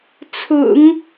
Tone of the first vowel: low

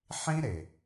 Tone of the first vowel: high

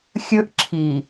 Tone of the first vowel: high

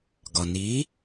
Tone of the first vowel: low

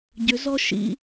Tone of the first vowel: rising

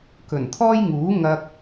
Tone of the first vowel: low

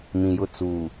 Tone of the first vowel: low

